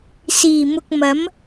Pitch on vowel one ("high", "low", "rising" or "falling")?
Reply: low